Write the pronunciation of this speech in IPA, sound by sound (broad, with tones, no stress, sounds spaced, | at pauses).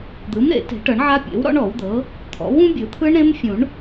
d̪ ɯ˩˥ m ɾ ḛ˨˩˦ t e̤˨˩˦ ʈ ɤ˨˩˦ ɳ ʕ a˦˥ pʲ ḛ˩˥ w ɾ ɔ̰˦˥ ɳ ɔ˨˩˦ w d̪ ɤ˩˥ | t̪ʰ ɔ̰˩˥ w ũ˦˥ bʲ ɯ˨˩˦ t̪ʰ ɯ˦˥ ɳ ɾ ẽ˦˥ m fʲ ũ˨˩˦ ɳ